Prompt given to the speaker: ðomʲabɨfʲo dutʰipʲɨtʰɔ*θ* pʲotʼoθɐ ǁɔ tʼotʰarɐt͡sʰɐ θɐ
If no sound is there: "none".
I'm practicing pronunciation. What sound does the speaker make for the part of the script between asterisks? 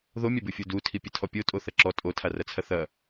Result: none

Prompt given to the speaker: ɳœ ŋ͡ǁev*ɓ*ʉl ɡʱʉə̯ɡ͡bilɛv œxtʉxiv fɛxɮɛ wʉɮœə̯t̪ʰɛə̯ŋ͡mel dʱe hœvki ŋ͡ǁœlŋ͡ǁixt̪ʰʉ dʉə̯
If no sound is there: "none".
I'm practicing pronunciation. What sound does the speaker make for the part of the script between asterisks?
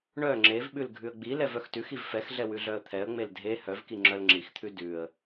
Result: ɓ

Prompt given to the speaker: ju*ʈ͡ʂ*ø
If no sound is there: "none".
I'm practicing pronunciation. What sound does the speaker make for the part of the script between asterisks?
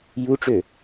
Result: ʈ͡ʂ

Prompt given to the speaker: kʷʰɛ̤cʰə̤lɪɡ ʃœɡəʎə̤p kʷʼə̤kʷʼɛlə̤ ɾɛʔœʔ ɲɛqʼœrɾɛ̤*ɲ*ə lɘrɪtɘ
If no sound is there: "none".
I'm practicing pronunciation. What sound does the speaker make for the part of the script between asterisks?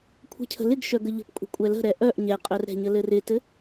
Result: ɲ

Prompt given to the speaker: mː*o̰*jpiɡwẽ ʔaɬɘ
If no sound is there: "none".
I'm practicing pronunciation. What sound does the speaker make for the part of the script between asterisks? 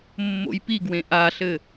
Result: o̰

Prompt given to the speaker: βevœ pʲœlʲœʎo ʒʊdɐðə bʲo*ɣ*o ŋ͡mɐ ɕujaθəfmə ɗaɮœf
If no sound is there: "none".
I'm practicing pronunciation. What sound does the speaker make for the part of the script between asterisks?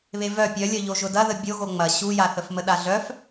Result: ɣ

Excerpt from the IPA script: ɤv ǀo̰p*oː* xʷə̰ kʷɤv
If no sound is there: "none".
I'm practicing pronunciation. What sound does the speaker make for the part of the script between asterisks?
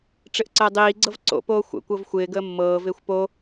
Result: oː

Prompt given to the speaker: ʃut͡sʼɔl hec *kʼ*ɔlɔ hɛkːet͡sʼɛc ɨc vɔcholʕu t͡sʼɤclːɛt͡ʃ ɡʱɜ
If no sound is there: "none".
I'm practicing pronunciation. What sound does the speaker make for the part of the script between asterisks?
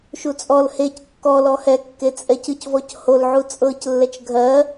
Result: kː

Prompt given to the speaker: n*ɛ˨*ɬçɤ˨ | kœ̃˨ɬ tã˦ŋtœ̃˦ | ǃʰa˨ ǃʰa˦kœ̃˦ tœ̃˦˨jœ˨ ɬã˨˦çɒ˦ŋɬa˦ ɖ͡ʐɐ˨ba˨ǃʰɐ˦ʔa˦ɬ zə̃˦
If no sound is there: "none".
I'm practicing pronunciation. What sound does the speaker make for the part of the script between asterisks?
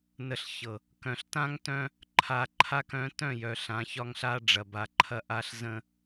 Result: ə˨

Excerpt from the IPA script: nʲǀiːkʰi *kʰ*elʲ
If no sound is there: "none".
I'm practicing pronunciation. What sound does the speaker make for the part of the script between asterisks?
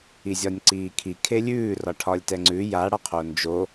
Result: kʰ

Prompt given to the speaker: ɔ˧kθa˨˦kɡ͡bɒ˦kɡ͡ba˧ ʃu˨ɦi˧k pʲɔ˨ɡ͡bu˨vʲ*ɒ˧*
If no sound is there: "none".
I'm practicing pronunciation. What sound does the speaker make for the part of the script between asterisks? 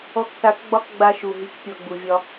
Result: ɒ˧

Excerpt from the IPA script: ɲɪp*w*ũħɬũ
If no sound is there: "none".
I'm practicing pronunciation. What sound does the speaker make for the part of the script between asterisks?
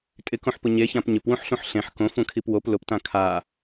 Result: w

